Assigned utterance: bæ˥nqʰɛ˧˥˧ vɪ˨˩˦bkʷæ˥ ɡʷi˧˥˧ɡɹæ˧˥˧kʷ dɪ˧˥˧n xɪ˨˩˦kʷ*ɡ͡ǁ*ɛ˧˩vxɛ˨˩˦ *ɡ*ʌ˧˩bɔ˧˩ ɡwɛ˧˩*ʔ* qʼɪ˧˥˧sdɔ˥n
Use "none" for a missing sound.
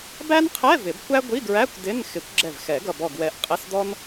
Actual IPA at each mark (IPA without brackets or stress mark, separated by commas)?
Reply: ɡ͡ǁ, ɡ, ʔ